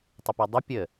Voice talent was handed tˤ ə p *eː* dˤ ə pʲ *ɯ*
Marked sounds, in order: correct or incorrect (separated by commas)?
incorrect, incorrect